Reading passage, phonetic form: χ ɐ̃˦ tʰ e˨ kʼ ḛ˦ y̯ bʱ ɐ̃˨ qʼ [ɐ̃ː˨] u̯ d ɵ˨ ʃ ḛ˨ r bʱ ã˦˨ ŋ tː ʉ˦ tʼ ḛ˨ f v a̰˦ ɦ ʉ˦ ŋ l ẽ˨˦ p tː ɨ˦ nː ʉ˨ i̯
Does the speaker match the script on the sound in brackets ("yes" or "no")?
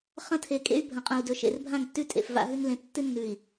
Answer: no